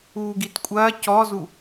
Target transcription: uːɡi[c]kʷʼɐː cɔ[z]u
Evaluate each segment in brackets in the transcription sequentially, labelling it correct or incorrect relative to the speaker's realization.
incorrect: t, correct

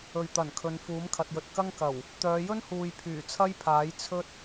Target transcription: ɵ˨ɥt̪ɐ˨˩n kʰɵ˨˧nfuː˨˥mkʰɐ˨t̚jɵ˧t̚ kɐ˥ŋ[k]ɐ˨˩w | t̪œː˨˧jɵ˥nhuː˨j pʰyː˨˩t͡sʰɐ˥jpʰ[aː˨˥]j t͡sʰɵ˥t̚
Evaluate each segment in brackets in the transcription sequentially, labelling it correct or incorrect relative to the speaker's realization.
correct, correct

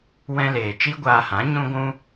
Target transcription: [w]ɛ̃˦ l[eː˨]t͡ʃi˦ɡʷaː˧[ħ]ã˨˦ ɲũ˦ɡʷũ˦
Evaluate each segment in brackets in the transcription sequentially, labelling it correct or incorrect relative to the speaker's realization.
correct, correct, incorrect: h

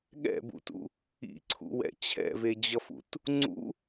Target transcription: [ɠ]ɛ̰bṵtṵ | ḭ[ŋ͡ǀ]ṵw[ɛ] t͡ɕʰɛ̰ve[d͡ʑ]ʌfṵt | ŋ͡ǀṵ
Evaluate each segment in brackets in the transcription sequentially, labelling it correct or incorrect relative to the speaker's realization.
correct, incorrect: ǀʰ, incorrect: ɛ̰, correct

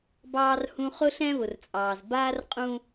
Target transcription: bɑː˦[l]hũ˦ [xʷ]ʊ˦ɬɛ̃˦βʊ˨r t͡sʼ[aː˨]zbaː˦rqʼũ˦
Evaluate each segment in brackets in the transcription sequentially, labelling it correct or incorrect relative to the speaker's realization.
incorrect: r, incorrect: χ, incorrect: ɑː˨

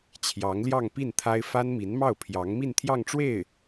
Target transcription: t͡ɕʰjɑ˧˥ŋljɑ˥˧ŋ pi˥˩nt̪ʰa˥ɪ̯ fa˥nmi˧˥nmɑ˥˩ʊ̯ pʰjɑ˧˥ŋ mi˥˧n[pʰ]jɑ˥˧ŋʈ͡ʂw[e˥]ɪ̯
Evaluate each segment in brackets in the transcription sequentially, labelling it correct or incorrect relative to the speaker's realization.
incorrect: t̪ʰ, incorrect: e˥˩

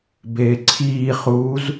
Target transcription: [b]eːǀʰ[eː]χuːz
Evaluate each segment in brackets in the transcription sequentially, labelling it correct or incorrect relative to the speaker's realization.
correct, incorrect: iː

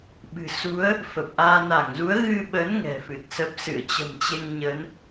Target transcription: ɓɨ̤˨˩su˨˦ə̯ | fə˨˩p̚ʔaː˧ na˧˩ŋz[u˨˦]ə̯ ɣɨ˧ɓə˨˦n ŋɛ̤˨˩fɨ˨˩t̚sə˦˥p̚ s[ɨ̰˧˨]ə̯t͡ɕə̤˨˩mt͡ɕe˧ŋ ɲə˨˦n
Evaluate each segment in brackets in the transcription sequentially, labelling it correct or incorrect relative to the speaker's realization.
correct, correct

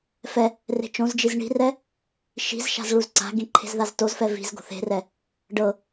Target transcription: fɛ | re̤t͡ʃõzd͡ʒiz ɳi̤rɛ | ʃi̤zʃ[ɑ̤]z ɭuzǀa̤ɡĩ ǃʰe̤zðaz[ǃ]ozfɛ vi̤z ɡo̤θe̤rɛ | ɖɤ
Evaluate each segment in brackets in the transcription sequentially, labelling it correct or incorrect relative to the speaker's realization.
incorrect: a̤, incorrect: t

